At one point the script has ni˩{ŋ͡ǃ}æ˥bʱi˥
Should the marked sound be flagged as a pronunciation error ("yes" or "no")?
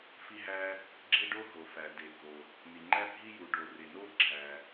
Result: no